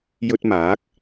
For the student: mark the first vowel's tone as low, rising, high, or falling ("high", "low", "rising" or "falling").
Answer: high